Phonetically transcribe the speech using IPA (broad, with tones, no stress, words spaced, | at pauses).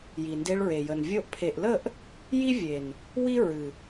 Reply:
ji˨nde˧ɭɹe˨jə˨n vʲo˧ʔpʰe˨ʔlə˦˨ʔ | ji˦vʲe˨n | wi˦ ɹɨ˨